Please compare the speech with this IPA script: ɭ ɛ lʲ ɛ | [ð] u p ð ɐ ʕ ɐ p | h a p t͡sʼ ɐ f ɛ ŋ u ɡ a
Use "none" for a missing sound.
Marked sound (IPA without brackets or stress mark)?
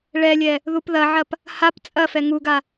ð